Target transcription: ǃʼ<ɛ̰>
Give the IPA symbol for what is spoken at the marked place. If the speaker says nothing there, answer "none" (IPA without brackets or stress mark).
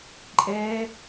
ɛ